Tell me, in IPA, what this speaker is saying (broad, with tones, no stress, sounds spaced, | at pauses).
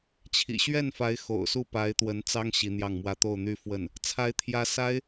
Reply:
t͡ɕʰ ḭ˨˩ ɕ ɥ ɛ˥˩ n f a˧˥ ɪ̯ x o̰˨˩ ʊ̯ s u˥˩ p a˧˥ ɪ̯ t̪ w ə˧˥ n t͡s ɑ˥ ŋ ɕ i˧˥ n̪ j ɑ˥˩ ŋ m w ä˥ t̪ o˥˧ ʊ̯ n̪ y˥˧ f w ə˥˩ n | t͡sʰ a˧˥ ɪ̯ t̪ʰ j ä˧˥ s a˥ ɪ̯